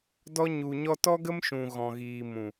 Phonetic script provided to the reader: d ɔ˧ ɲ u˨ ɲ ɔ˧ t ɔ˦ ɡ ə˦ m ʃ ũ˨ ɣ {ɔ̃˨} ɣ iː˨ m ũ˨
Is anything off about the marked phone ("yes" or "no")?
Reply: no